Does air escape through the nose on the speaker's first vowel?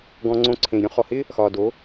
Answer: yes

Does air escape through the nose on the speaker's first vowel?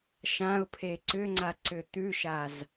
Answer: yes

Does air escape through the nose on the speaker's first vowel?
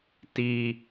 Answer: no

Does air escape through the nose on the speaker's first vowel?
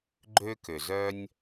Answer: no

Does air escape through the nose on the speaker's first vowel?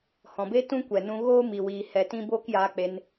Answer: yes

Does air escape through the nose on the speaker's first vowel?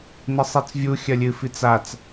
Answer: no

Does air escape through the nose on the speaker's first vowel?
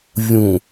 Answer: yes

